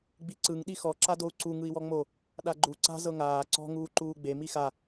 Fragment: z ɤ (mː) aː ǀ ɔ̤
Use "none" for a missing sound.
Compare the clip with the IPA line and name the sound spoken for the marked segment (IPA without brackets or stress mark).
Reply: ŋ